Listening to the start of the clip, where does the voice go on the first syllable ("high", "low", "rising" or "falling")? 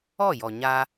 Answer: falling